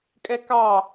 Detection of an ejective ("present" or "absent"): present